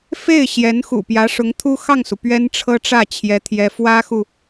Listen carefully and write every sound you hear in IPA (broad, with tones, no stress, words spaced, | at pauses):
fe˥˩ɪ̯ ɕjɛ˧˥nxṵ˨˩pjä˧˥ ʂʊ˧˥ŋt̪ʰu˥xɑ˥˩ŋsu˩ pɥɛ˥nʈ͡ʂʰɤ˥ʈ͡ʂä˥˩ t͡ɕʰjɛ˥t̪ʰjɛ˥ fwä˥xu˨